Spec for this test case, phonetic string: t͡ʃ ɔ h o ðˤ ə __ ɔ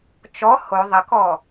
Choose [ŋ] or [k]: k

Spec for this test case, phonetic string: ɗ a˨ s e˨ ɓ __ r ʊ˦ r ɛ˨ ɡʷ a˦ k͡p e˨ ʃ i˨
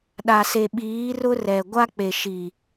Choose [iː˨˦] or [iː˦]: iː˨˦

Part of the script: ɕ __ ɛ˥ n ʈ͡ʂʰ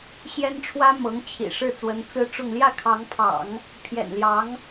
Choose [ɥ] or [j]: j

